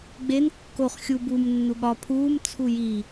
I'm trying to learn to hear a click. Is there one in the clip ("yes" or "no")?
no